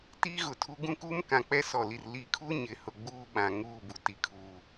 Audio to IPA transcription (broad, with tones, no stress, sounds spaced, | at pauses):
t iː˦ ɣ ʊ˨ tʰ u˦ ɡ ũ˦ k uː˦ m k ã˨ k͡p ɛ˦ s ɔ˨ l i˨ r l i˨ kʰ u˦ ɲ ɪ˨ h ʊ˨ ɡ͡b uː˦ ɓ ã˨ ŋ uː˦˨ b u˨ t i˨ kʰ u˨